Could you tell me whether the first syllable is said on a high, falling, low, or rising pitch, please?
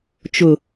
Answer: low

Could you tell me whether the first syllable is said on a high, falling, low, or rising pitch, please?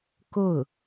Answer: falling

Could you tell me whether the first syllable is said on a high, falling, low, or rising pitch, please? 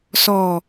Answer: low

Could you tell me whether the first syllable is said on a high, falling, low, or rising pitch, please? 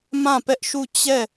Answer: falling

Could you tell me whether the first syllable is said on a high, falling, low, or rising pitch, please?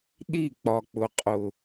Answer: falling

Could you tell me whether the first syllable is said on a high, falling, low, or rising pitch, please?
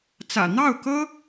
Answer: low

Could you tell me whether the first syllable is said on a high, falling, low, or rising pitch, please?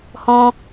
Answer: high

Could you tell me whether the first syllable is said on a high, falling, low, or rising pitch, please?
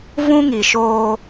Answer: high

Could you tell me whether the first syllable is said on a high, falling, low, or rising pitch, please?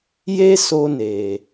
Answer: high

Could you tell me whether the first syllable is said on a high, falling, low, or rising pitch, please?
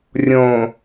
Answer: low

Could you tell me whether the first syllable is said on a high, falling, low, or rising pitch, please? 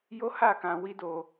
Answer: high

